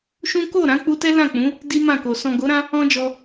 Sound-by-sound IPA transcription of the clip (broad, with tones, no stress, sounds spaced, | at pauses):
ʃ ũ˦ k o˦˨ ɾ ã˨˦ k͡p u˧ t ɛ˦ l ã˦˨ k͡p ũ˨˦ | d i˦ m ã˦˨ k o˨ s ɔ̃˨ ɡ o˨˦ ɾ ã˦ | ɔ̃˧ d͡ʒ ɔ˧